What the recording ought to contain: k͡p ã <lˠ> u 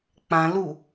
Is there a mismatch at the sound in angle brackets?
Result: yes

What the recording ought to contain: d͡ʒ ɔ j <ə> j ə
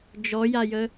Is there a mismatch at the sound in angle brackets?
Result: yes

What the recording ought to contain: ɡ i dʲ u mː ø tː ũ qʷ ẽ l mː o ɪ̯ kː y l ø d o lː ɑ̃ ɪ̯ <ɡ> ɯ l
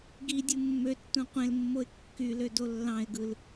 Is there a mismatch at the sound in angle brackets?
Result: no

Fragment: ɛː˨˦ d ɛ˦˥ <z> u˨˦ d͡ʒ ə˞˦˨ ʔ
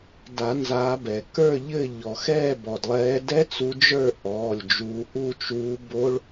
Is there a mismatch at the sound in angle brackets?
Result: yes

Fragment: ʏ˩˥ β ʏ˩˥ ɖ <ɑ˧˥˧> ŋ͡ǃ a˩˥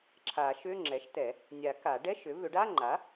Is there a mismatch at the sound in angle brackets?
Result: yes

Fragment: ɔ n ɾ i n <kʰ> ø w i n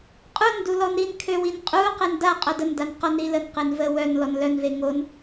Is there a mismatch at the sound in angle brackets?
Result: no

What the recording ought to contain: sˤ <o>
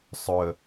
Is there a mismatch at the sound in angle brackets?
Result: yes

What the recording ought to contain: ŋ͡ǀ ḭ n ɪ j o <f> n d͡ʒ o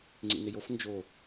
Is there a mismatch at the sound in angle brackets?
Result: no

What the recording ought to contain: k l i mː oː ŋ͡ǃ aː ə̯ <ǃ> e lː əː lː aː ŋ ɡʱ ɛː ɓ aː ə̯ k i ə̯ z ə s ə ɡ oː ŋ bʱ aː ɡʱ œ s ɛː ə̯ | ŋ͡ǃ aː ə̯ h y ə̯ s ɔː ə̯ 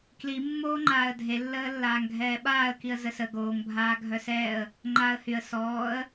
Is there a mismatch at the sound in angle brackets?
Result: yes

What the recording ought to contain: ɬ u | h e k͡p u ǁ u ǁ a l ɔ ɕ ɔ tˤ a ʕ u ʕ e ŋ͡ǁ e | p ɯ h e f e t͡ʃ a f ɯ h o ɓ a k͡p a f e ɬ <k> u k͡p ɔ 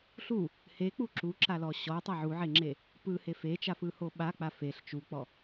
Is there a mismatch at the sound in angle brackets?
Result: yes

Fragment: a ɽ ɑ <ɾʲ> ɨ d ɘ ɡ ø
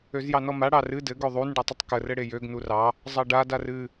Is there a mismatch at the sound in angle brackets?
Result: yes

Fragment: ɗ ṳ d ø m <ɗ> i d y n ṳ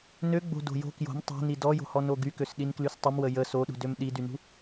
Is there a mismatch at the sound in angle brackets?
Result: no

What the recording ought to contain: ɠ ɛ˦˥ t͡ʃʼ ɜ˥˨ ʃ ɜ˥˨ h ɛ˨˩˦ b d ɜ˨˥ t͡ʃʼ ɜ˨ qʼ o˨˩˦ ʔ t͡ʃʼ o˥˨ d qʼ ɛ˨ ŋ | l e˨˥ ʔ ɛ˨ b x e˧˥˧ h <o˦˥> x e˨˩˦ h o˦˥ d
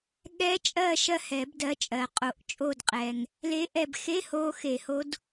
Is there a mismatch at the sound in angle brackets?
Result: no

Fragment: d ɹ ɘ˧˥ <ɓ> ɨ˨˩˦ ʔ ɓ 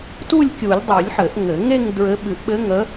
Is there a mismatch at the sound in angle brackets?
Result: no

